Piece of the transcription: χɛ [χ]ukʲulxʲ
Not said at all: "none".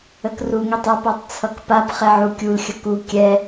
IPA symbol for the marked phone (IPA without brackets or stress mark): ʕ